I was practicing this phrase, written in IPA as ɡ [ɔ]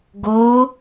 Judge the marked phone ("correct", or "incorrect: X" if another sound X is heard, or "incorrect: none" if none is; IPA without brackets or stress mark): incorrect: o